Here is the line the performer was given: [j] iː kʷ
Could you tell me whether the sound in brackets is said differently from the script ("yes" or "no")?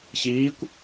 yes